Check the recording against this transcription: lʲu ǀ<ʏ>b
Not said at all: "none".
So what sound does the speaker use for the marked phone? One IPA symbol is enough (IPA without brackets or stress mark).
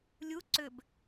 ʏ